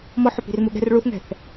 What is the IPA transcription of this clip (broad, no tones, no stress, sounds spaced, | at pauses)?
m ɔ ħ ɵ p i̤ r m u ɠ ɛ̤ r ɭ u θ ŋ ɛ̤ θ